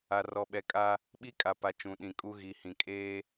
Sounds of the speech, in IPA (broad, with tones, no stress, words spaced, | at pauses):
a˨rɔ˨ɓɛ˨kʼa˦ | ɓi˦kʼa˨pa˨ t͡ʃũ˨ɗĩ˨kʼu˦ ɣi˨hĩ˨ kʼeː˦